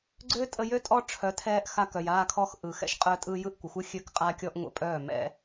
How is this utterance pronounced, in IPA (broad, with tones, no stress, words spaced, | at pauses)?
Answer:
ɡ͡ǀøː˦tʼə˧jø˦ tʼɔ˦ʈ͡ʂʰœ˨˦tʰɛː˧ʔ xa˧kœ˨j aː˧kʰɔ˧x ʔɯ˨ xɛ̰˦ʃqʼœ˧tʼɯ˧jɯ˦˨ʔ kʷə˨xʷɯ˦ xʲø˧kqʼa˧kʲɔ˧ʔ ŋʷə̰˧pʼœː˦˨mɛ̰˦